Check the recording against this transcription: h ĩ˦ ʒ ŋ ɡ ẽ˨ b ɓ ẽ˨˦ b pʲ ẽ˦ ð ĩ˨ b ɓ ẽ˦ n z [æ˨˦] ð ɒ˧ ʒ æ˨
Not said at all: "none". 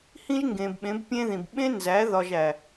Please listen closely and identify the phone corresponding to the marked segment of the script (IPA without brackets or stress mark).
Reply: æ˨˦